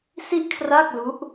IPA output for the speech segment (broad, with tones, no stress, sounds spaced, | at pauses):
s i˥˩ ʔ kʰ r a˥˩ k̚ l u˦˥ ʔ